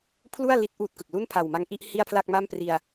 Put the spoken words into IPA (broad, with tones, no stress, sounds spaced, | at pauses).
pʰ l u˥˩ a̯ l i˦˥ t̚ ʔ uː˥˩ t̚ k ɯ˨˩ k̚ l u˥˩ n pʰ a˨˩ w m a˧ ŋ ʔ i˥˩ ʔ h i˥˩ a̯ pʰ l a˥˩ k̚ m a˥˩ m p r i˧ a̯